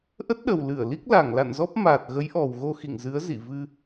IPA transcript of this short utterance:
ʔ ə˦˥ t̚ ɗ ə˨˩ w l ɨ˧˩ ə̯ l i˦˥ k̚ l a˧˩ ŋ l a̰˧˨ n z ɔ˦˥ p̚ m aː˨˩ t̚ ɣ ə˨˦ j ʔ ɔ˨˩ w ɣ o˧ x ḭ˧˨ ŋ z ɨ˨˦ ə̯ z ḭ˧˨ v ɨ˧

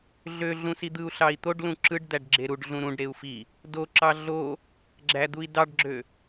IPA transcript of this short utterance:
ɮ ø ɮ ũ s i d̪ ɯ u̯ ɬ ɑ i̯ t̪ o ɖ l ũ ǁ ɯ ɖ d̪ æ ɖ ɡ͡ǁ e ɾ u ɖ ɮ ũ ɾ ũ ɖ ɾ e u̯ f i | d o ǁ ɑ ɮ o | ɡ͡ǁ æ d̪ u i̯ d ɑ ɖ ɡ͡ǁ ø

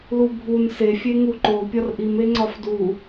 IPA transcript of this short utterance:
l u bʱ u n s e fʲ e ŋ u ǃ o pʲ ɒ r ʔ i m e ŋ͡ǀ ɒ f d u

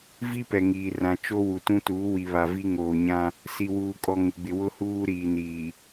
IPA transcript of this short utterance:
v i˦ p ɛ˨ ŋ iː˨ r ã˨ t͡ʃ o˦ w u˨ t ũ˦ t uː˨˦ w i˨ β a˨ v i˦ ŋ oː˨ ɲ ã˦ | s i˨ w uː˨ kʼ ɔ˨ ŋ ɪ˨ ɡ͡b ɪ˨ w ʊ˦ h uː˦ ɾ iː˨ n iː˨

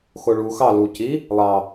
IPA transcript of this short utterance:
x o ɭ u x ɑ l u c i | lˠ ɑ

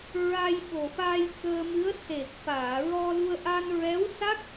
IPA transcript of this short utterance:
ɹ a˧ j ɓ o˨˩ f a˧ j k əː˧ m ɨ˧˥ ə̯ s e˨˩ k̚ f aː˨˩˨ ɹ ɔ˧ l u˧ ə̯ ʔ a˧ n ɹ ɛ˧˥ w s a˦˥ k̚

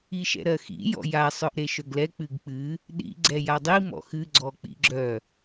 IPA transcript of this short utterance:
i ʃ ɛ̰ ɾ ɜ x ḭ j ɔ̰ j a sˤ œ ʔ ɾ e ʃ œ ɡ l ɛ k͡p ɨ ɡ k͡p ɨ | ɗ ḭ ɡ͡ǀ ɛ j a dˤ i m ɔ̰ x ɨ ɡ͡ǀ ɔ k͡p ḭ ɡ͡ǁ œ

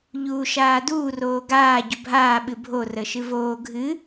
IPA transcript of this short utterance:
ʎ uː ʃ aː d uː r oː ɡ aː ɟ u bʱ aː ɓ ɨ bʱ o r ə ʃ ɨ v oː ɡʱ ɨ

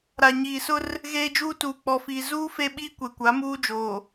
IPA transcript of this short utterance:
ɾ a˨ ɲ iː˨ s ʊ˦ r | ɣ eː˦ d͡ʒ uː˦ t uː˨ k͡p ɔ˨ f iː˨ z uː˦ f e˦ ɓ iː˦ kʷ e˨ kʷ a˨˦ m uː˦ d͡ʒ oː˨

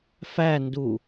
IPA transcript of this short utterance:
f æ n d u

